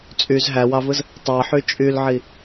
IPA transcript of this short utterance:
t͡sʼ y z ɦ æ w ɑ v ɯ z | tˤ ɑ ħ y t͡ʃʼ y l ʕ i

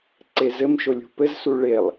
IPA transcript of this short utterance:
ǀ e z ɘ m ʃ o lʲ ṳ p ɘ z s u ɭ e lˠ

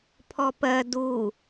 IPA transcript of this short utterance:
pʰ ɔ p ɜ d u

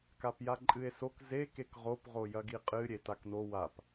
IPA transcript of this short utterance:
k a p j a ǃʼ ɨ e̯ s o k z e k e k ʁ o p ʁ o j ɐ ɡ i qʼ ɨ ɾʲ e t a k n o w a p

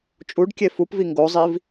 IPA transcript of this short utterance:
t͡ʃʼ u ɖ kʲ e f u p v i ŋ ɡ o zˤ i v

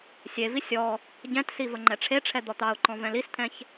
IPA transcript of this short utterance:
sʲ e v i sʲ ɔ | ɟ ɛ̃ t s i v ə ŋ͡ǃ ɛ ʈ͡ʂʰ e ʈ͡ʂʰ ɛ d̪ ɔ t̪ ɑ ʊ̯ ǃ ɔ̃ v ɛ̃ l i s t̪ʰ ɛ̃ ç

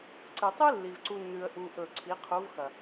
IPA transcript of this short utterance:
ǀ ɨ˨ tˤ ɨ˦ lː i˧ v ǀ u˦ nː ʉ˧ ə̯ ʔ u˦ ʔ ɵ˦˨ ǀʰ i˨˦ qʰ u˨˦ v x ɐ˨

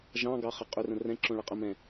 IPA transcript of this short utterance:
ʒ ɑ̃ ɡ ɑ χ ə qʼ ʏ r ə̃ r ɛ̃ ǁ õ ɭ ə qʼ ə m ɛ̃

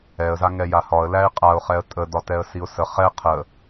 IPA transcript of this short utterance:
ɛ ə̯ z a ŋ ɛ j a h ɒ ə̯ l æ ɪ̯ qʼ a ʊ̯ χ ɛ ə̯ tʼ ə d ɒ t ɛ ə̯ s i ʊ̯ s ə χ ɛ qʰ ə

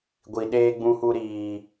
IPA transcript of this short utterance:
ɡʷ i˨ ɗ eː˧ ɡ͡b ũ˧ h u˧ ɾ iː˨

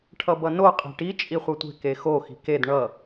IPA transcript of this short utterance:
ʈʰ ʌ b ʌ n o qʼ e̤ ʈ i t͡ʃʼ i χʷ ʌ tʷ e̤ k e x o x i̤ k e d ɳ ʌ

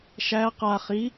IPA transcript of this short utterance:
ʃ æ q a χ i

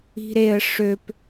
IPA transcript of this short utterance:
i̤ ɾ e ə̯ ʂ ø p

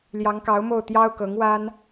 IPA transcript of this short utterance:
l j ɑ˧˥ ŋ k ɑ˧˥ ʊ̯ m o˥˩ ʊ̯ t̪ j ɑ˥ ʊ̯ k ɤ˧˥ ŋ w a˥ n

